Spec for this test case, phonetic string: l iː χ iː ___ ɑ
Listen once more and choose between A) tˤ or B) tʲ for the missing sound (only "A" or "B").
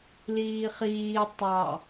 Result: A